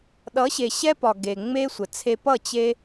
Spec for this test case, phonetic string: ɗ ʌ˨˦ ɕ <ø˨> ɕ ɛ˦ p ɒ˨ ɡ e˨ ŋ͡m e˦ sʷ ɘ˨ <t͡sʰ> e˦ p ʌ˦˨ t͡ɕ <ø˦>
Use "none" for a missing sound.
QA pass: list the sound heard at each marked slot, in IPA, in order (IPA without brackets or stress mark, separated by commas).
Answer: e˨, t͡sʰ, e˦